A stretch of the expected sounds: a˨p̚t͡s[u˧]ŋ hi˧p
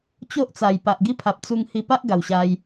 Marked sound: correct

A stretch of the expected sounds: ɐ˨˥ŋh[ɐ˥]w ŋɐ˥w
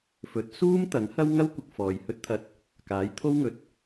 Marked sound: correct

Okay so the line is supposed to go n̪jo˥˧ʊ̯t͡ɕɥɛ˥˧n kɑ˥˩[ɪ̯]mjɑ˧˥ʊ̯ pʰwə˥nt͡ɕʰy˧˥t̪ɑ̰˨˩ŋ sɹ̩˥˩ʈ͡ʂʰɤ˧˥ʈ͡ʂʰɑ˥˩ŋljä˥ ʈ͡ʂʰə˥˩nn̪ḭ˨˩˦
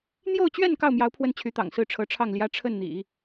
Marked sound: incorrect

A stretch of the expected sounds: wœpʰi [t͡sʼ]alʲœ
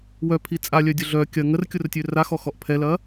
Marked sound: correct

